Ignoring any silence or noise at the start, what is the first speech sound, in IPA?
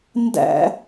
n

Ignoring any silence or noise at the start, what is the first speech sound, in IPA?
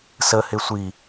s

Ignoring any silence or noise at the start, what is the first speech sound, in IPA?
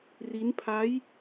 r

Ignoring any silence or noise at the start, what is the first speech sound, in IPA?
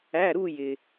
æ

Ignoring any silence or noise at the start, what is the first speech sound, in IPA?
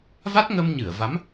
v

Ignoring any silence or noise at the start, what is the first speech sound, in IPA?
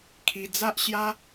kʰ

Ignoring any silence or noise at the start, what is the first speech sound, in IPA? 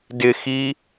d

